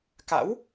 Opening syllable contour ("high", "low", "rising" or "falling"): rising